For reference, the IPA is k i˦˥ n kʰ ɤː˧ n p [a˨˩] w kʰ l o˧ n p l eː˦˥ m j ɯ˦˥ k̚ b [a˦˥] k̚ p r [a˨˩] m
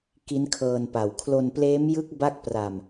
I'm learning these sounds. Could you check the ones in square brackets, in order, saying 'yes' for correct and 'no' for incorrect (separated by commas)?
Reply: yes, no, no